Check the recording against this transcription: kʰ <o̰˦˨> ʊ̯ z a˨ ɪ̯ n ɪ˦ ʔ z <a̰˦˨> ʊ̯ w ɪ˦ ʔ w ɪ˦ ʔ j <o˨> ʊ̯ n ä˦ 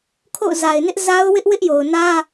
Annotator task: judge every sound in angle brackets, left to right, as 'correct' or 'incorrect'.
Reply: correct, incorrect: a˦, correct

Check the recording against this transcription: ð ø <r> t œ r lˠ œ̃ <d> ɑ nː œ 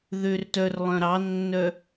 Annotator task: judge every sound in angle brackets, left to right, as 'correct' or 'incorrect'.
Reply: correct, incorrect: ɾ

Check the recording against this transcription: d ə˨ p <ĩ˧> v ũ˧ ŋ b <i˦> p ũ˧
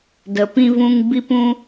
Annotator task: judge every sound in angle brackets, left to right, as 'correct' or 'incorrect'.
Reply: correct, incorrect: i˧

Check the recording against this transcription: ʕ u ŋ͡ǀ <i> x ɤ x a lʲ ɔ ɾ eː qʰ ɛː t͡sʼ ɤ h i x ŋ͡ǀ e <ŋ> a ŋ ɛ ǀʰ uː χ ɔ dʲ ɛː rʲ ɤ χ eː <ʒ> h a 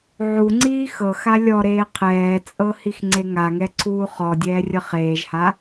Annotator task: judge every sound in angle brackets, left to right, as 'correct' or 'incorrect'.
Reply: incorrect: iː, correct, correct

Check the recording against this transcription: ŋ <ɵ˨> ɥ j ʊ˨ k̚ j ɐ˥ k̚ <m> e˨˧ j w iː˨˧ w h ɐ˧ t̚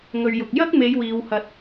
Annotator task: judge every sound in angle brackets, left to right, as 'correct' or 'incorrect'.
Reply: correct, correct

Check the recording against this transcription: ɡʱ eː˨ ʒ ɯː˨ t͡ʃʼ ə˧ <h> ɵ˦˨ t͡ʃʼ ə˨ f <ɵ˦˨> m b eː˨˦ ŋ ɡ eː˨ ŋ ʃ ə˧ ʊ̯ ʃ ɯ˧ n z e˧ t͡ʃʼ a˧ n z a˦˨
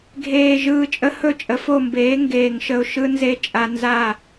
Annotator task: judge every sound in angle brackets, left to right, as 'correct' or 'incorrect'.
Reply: correct, incorrect: o˦˨

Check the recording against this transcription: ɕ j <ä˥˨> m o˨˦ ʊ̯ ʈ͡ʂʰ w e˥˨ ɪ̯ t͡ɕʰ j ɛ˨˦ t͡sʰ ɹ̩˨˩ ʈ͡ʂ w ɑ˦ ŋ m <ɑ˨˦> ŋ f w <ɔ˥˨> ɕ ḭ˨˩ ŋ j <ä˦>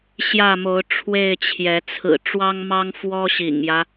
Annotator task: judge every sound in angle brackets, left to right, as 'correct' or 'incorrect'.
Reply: correct, incorrect: ɑ˦, incorrect: ɔ˦, correct

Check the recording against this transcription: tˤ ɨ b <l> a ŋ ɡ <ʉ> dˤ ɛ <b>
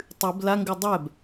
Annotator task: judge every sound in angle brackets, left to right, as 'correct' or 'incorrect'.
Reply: correct, correct, correct

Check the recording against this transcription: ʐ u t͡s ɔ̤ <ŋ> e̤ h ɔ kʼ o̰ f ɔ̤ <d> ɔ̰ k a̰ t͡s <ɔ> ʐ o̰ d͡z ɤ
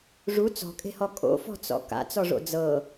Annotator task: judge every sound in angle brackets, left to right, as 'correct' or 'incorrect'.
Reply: incorrect: kʼ, incorrect: t͡s, correct

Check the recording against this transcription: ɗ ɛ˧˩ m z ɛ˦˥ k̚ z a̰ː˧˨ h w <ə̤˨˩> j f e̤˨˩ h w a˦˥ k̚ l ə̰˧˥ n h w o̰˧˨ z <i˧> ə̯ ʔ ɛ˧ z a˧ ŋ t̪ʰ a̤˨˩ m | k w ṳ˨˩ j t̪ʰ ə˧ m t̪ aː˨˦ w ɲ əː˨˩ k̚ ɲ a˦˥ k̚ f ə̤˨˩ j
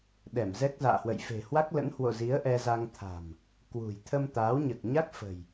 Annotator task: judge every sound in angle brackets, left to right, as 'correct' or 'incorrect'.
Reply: incorrect: ə̰˧˨, incorrect: i˨˦

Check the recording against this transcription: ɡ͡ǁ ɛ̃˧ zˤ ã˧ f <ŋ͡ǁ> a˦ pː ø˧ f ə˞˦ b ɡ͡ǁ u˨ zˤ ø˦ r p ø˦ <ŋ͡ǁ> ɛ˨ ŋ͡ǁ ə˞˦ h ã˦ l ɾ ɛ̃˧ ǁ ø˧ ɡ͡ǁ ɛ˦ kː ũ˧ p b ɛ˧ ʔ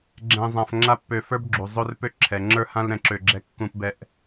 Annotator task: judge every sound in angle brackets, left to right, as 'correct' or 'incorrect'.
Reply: correct, incorrect: ǁʰ

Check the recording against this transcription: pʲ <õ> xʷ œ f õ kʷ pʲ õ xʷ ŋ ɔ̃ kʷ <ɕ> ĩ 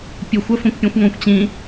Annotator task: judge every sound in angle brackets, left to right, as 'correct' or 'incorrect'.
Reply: incorrect: o, incorrect: t͡ɕ

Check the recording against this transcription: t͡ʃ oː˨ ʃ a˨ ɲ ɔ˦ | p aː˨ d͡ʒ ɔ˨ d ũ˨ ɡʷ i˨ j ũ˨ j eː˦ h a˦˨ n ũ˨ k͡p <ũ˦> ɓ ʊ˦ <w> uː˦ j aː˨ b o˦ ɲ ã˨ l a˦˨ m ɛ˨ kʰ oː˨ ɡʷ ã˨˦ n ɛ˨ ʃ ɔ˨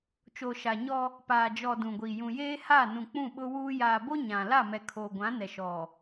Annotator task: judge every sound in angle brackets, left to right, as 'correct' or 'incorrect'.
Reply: incorrect: ũ˦˨, correct

